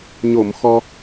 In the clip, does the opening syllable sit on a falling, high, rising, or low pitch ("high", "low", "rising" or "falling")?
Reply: low